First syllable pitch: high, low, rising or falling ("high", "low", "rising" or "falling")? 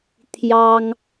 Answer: high